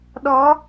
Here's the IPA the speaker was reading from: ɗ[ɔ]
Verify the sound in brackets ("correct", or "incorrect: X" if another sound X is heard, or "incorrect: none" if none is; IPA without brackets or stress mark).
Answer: correct